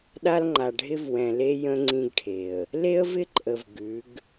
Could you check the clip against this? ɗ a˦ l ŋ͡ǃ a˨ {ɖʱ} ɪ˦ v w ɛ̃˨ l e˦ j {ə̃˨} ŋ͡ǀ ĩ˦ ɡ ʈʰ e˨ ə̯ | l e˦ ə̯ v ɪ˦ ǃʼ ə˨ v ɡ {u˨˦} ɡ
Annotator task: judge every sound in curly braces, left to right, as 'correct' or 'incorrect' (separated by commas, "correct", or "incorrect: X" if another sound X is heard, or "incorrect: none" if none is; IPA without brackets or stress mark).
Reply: correct, incorrect: ə̃˦, incorrect: ʉ˨˦